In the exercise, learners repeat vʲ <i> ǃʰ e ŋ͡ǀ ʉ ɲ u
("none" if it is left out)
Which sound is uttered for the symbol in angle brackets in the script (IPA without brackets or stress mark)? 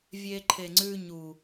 e